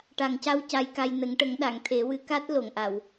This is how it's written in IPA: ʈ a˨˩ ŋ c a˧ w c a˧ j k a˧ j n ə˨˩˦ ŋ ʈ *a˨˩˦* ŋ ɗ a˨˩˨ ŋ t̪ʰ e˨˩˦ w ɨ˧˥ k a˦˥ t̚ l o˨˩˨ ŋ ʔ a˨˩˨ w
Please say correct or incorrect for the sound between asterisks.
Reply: incorrect